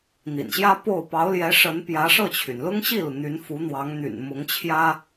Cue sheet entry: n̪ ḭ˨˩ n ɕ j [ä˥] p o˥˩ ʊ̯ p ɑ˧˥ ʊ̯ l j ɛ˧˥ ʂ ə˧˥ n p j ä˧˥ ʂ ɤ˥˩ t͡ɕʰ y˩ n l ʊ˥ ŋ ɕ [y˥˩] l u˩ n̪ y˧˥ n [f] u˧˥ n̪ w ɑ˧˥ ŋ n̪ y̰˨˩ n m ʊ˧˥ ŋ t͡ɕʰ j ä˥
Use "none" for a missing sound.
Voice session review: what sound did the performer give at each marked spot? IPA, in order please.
ä˥, i˥˩, f

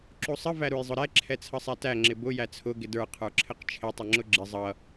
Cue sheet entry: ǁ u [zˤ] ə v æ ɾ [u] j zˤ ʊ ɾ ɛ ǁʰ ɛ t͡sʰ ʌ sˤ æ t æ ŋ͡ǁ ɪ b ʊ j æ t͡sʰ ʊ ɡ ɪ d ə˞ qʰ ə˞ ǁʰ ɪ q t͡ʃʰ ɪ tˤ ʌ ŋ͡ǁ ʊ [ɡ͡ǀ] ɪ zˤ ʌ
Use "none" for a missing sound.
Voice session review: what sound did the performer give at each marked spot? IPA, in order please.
sˤ, u, ɡ͡ǁ

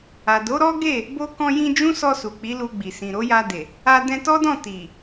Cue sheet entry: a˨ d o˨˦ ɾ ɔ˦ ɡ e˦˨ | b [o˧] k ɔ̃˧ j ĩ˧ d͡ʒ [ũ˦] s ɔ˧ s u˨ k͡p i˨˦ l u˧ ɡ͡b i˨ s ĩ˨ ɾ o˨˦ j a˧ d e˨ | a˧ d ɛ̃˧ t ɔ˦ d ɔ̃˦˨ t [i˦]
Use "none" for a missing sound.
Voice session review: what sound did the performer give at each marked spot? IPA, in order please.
o˧, ũ˦, i˨

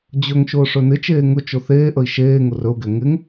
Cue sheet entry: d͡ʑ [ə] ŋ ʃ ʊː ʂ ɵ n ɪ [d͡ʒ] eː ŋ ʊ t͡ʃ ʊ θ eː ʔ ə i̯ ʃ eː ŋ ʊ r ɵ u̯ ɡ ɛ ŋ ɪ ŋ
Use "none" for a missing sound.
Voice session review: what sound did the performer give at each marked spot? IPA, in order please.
ɵ, t͡ʃ

